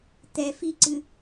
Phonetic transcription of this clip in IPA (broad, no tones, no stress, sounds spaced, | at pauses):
t̪ ɛ f i ǀ ɨ